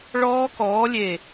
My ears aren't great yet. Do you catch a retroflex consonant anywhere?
yes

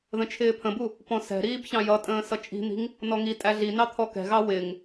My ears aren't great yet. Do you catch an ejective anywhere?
yes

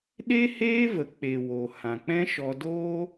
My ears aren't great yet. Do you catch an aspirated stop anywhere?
no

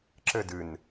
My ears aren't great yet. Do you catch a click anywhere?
yes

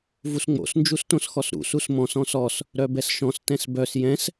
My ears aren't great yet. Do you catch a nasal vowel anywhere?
yes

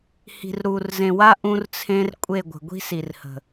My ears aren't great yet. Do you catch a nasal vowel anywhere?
yes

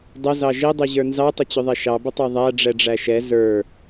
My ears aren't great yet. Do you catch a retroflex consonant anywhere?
yes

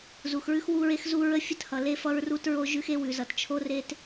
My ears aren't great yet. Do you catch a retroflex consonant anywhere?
no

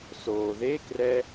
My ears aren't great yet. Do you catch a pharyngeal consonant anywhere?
no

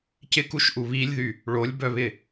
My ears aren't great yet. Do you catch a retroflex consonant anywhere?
yes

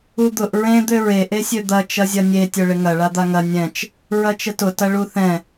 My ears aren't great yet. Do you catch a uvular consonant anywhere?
no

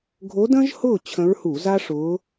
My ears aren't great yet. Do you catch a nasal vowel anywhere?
yes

